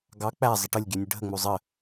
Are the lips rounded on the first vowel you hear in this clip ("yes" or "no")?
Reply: no